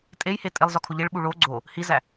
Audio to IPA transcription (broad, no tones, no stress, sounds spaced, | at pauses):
tʼ e j h e tʼ e lˠ z ɒ kʰ o ʎ e ɭ ɓ u ɭ o ɡ͡ǀ o | h i z æ